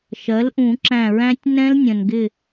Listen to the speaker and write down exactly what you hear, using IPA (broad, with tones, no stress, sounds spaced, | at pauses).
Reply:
ʃ ɜ˩˥ l ʔ ũ˨˩˦ ǁ æ̃˧˩ ɹ æ̃˦˥ tʲ n ɛ̃˦˥ l nʲ ə̃˩ n ɡ ɪ˧˩